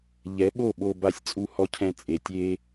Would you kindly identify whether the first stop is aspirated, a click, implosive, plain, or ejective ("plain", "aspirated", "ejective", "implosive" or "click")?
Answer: implosive